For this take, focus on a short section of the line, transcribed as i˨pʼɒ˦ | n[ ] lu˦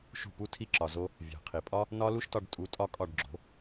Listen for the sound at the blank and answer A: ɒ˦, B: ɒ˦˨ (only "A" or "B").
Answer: A